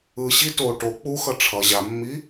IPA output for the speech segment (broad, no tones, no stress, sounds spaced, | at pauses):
ɯ ɕ i t o ʈ o k͡p u x ʌ ʈ͡ʂʰ ʌ ʑ a mː i